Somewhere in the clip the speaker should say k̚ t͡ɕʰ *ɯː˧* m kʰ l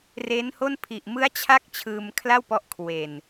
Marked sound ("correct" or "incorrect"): correct